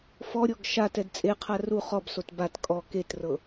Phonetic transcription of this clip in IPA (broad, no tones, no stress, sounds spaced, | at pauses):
f ɔ ɾʲ ɔ ɡ ʃ a t ɛ d t͡sʼ e qʰ a r u χ ɔ b s o t b a t kʼ ɔ k e t r ɤ